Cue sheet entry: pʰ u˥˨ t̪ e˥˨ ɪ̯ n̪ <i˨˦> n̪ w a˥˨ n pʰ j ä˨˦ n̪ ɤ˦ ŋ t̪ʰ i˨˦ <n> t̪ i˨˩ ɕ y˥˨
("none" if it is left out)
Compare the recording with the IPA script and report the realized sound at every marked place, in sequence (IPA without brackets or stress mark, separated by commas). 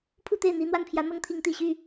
i˨˦, ŋ